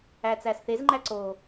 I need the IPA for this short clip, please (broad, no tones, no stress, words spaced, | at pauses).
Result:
æt͡sæsθezŋ͡ǃæ ǀo